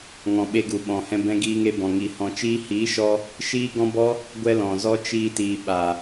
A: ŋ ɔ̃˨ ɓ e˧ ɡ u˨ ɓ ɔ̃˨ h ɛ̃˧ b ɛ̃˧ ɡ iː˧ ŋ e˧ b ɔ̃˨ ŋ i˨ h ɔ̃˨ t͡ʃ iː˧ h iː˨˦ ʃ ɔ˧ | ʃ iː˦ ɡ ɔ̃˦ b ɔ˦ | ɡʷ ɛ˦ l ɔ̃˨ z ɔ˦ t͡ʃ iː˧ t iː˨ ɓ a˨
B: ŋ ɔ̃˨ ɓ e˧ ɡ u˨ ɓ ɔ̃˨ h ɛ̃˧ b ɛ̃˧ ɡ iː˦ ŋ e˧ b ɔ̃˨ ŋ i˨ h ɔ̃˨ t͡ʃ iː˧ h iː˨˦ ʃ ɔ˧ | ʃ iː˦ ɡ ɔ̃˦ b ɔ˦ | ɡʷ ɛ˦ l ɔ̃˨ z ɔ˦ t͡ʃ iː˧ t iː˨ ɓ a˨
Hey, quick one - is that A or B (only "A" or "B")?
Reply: A